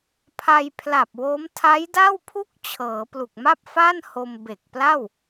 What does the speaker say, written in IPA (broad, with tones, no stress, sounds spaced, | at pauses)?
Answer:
pʰ a˧ j pʰ l a˨˩ p̚ w o˦˥ m tʰ a˦˥ j d a˥˩ w pʰ u˥˩ k̚ t͡ɕʰ ɤː˩˦ p l u˨˩ k̚ m a˥˩ p̚ f a˥˩ n h o˧ m b e˨˩ k̚ p l a˥˩ w